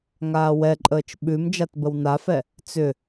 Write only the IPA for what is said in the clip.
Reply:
ŋaːwɛǃʼəːt͡ʃ ɓʉm d͡ʒatbəwnafɛ | t͡sʏ

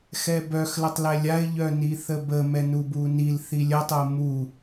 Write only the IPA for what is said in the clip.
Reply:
xɛbœxlətˤlɛ lʲaɪ̯ ʎœniθəbə mɛnubunil θilʲətˤəʊ̯ mu

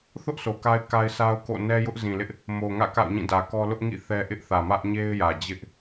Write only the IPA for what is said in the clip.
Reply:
θʊ˦ʔ sʰo˨ka˦ɪ̯ka˦ɪ̯ sʰa˦ʊ̯ko̰˦˨ nɛ˦jʊ˦ʔzĩ˨lɪ˦ʔ | mo˨ŋä̰˦˨ ka̰˦˨ʊ̯ɲĩ˦˨dä˨kɔ˦ lʊ˦ʔŋḭ˦˨ θɛ˦ ʔɪ˦ʔθä˨ mä˦ʔɲe˦ɪ̯jä˨d͡ʑɪ˦ʔ

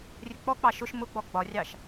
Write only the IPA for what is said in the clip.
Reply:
rʲək͡pɔk͡pɑ ʃʊʃ mʊɡ͡bɔ ɡ͡bɒrʲɑʃ

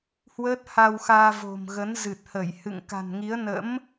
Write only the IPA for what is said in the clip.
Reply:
hwəː˦˥t̚ha˧wxaː˧vo̤˨˩m ɣə˨˦nzɨ˨˩t̚hə˧˩jhɨ̰˧˨ŋ ka̤˨˩n ŋi˨˦ə̯ nə̰˧˥m

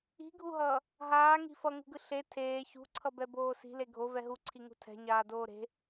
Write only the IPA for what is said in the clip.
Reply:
i̤ɡʱuɦʌː | ɦaːŋi̤ fʌŋṳɡɯ ɬe tʰeː çṳǀʰʌbɛboː si̤le ɡʱovɛ ɦuǀʰiŋṳ tʰɛ̤ɲaːdoː ɾe̤

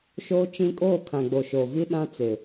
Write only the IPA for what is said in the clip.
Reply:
ʃoː˦t͡ʃĩ˦ kʼoː˦˨kʰã˨ɡ͡bo˨ ʃoː˨vi˦ɗã˦t͡sɪ˨

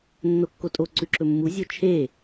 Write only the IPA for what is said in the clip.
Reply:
nːokːotʼo ǀʉǁɵmːu zʲot͡ʃʰe

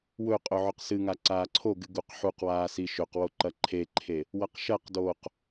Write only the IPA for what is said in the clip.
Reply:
wɵ qʼɵʕɵqsɨŋa ǀaːǀʰoɡɨ ɡuqħuqwaː siʃɵqwo ǃɐǃʰeǃʰe | wɐqʃɐqdoːq

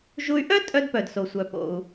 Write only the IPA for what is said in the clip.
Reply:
ʒu˧y̯ʔœ˥ tʼœ˧dpœ˩dso˩sʷœ˩ po̰˩u̯

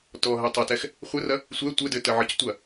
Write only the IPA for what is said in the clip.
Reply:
tɔɦɛtˤɐtɛx | χʷɘrɐ | sʷɛ tʷɘdɘ təʕəctʷɐ

